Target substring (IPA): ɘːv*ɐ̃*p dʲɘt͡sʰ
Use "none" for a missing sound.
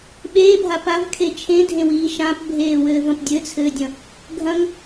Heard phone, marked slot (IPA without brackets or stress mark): ɐ̃